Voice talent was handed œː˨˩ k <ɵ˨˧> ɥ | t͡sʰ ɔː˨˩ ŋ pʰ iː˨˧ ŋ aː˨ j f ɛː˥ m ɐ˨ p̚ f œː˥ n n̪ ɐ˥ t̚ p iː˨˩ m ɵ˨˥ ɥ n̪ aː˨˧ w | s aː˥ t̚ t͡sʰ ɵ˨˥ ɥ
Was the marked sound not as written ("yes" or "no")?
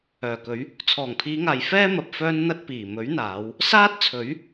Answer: no